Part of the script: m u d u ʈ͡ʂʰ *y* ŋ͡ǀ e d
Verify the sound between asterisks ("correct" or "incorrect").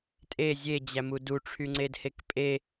correct